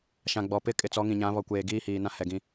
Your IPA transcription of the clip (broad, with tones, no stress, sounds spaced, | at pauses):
ʃ ã˨ ɡ͡b ɔ˨ p ɪ˦ kʼ ɪ˨ t͡s ɔ˨˦ ŋ ĩ˨ ɲ ã˨˦ β ɔ˨ kʷ eː˨ ɡ iː˦ h iː˨ n ã˦ h ɛ˨ ɡ ĩ˨